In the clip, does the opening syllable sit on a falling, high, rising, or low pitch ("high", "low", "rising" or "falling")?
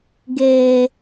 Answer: high